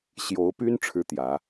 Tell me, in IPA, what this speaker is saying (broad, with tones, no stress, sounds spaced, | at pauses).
ɕ j o˧˥ ʊ̯ p y˥ n ʈ͡ʂʰ ɻ̩˥ t̪ j ä˧˥